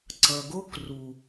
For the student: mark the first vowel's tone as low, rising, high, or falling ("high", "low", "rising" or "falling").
low